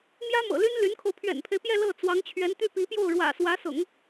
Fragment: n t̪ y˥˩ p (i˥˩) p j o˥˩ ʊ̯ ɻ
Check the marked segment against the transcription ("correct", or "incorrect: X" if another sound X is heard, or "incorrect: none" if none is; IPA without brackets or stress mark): incorrect: i˧˥